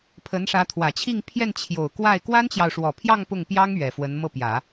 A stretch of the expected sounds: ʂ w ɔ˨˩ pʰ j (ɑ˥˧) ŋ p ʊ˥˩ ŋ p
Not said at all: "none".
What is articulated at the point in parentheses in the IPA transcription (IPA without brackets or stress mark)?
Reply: ɑ˥˧